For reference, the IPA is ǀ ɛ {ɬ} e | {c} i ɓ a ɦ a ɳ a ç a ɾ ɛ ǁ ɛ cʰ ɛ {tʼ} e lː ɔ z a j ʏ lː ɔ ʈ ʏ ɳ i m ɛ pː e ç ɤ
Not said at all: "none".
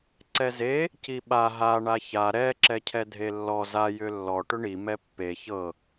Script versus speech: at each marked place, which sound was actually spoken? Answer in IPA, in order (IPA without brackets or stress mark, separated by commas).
z, c, dʱ